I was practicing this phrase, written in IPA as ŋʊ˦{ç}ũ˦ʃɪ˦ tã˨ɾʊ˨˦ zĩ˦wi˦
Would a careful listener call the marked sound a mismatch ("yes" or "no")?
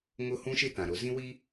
yes